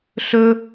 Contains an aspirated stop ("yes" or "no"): no